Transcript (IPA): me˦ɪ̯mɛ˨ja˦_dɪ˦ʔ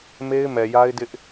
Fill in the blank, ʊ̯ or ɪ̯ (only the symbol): ɪ̯